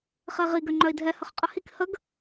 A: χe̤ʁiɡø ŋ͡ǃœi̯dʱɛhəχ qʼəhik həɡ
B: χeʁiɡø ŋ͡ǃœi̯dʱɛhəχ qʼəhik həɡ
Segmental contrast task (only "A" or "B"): B